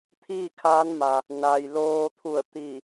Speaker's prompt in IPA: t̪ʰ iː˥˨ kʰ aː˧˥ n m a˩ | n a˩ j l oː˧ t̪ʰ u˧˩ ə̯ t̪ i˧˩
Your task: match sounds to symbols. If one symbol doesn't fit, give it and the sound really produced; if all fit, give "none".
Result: none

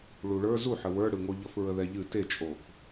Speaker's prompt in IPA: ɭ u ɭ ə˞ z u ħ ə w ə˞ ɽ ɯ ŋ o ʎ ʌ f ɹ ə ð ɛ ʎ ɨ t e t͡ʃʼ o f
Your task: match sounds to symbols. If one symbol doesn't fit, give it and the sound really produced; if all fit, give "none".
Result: none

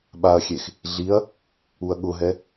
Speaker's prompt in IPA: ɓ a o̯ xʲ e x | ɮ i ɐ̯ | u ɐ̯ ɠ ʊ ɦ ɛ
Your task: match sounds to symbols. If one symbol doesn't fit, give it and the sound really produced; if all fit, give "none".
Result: o̯ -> ɐ̯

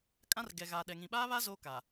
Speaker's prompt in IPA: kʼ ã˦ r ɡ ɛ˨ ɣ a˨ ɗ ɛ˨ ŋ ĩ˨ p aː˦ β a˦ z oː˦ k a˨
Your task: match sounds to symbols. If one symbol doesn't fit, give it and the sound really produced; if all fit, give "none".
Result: p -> ɓ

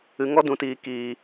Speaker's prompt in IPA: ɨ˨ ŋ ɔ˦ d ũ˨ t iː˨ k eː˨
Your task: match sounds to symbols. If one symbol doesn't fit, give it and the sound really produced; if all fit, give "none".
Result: eː˨ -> iː˨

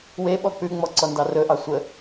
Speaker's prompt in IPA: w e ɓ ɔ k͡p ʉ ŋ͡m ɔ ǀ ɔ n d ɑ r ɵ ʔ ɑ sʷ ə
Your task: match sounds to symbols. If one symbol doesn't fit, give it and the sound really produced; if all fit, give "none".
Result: none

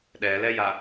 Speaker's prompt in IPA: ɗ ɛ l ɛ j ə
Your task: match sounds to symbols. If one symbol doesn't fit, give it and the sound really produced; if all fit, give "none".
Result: ə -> a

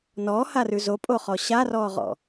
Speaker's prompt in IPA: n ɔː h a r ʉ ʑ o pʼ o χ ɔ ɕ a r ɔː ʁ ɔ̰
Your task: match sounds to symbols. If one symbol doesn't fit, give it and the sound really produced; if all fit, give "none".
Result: ʑ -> z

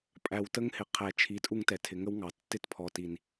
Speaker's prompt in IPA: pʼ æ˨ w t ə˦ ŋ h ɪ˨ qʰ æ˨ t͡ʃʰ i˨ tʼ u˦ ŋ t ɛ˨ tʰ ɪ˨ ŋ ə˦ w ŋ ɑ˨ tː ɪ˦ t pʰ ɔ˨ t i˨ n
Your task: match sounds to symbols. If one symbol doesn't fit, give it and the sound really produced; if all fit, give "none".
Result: none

